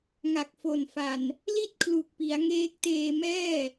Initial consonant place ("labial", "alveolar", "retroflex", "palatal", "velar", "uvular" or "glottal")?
velar